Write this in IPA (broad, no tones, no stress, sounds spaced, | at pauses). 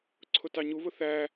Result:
ǀʰ ʊ t ɑ ɲ u β ʊ θ æ